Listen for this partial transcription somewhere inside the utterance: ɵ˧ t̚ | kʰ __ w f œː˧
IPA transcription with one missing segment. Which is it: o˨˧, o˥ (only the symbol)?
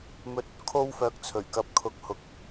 o˥